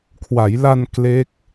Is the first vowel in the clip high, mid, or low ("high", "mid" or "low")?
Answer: low